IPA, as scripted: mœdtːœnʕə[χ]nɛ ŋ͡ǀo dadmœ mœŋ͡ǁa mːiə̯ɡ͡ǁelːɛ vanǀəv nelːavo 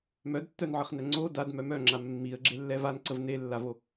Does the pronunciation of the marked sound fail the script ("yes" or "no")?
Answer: no